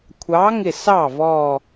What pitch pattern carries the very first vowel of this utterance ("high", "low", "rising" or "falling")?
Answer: rising